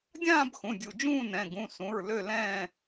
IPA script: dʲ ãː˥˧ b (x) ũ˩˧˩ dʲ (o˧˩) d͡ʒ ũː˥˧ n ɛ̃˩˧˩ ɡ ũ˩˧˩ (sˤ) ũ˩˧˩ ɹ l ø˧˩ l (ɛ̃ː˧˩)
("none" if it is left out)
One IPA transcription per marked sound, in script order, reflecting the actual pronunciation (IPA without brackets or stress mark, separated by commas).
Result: x, u˧˩, s, ɛ̃ː˧˩